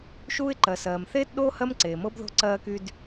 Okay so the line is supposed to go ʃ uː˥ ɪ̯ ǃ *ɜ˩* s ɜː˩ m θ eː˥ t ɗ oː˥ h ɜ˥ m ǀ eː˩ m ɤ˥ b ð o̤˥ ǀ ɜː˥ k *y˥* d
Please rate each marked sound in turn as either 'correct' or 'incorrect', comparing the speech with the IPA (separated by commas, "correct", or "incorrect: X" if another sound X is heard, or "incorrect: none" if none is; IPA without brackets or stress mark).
correct, correct